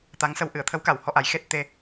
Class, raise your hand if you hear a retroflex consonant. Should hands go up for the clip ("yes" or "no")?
no